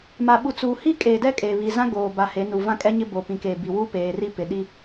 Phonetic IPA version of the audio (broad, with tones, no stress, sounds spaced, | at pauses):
m a˨ ɓ u˨ t͡s uː˨ h i˦ kʼ eː˨ d ɛ˦ kʼ e˨ β i˨ z ã˦ ɡ oː˨ b a˨ h e˨˦ n u˨ v ã˦˨ kʼ ɛ˦ ɲ ɪ˦ b o˨ p ĩ˨ k eː˨ b i˨ w u˦ p eː˨ r i˦ p ɪ˨ ɗ i˦